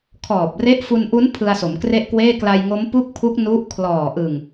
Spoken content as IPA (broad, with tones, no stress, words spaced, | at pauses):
kʰɔː˨˩p̚re˦˥ʔ fu˧nʔu˦˥n pʰɯ˧a̯so˩˦mkre˥˩ʔkweː˥˩ kla˧jŋo˦˥mpu˥˩k̚pʰu˦˥k̚ nu˦˥ʔkʰlɔː˨˩ʔɯ˨˩ŋ